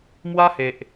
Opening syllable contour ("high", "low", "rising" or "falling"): high